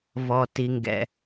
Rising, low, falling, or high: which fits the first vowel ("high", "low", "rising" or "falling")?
low